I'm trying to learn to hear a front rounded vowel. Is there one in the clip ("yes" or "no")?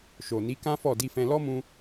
no